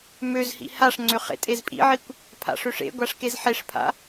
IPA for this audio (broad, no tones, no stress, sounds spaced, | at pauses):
m ø z h ḭ h a ʂ ŋ͡ǀ ø χ ḛ tʼ e z pʼ ḭ ʕ i kʷ | pʰ a̰ ʂ ø ʂ ḛ ɡʷ a ʂ k e z ħ e ʂ pʰ a̰